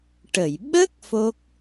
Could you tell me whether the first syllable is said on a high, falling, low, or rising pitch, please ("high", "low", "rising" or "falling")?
low